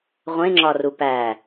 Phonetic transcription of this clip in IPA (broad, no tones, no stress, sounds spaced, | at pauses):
ʁʷ ẽ ŋ͡ǁ ɒ r u p æ